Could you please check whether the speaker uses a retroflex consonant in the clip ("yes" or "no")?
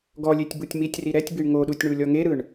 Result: yes